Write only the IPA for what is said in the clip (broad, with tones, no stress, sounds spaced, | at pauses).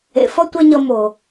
ḛ˨ f ʌ˦ tʷ ɛ˦ ɲ ʌ˧ m o˨